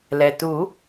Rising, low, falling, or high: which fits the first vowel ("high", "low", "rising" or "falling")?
low